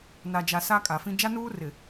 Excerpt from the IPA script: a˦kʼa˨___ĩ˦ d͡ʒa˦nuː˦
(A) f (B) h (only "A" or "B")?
A